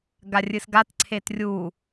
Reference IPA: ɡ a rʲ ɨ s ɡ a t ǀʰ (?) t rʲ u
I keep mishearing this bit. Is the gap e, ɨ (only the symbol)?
e